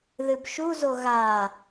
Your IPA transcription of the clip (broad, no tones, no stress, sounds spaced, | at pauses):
ð ɨ b ʃ u z o ɣ a